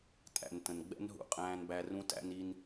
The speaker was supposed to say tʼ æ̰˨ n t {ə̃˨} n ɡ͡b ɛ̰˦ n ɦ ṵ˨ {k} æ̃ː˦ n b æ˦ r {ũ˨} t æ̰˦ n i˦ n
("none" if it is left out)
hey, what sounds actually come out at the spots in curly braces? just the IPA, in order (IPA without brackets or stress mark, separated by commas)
ə̃˨, qʼ, ũ˦